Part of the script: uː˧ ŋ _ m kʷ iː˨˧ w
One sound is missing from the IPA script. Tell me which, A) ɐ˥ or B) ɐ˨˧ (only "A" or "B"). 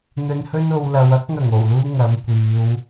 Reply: B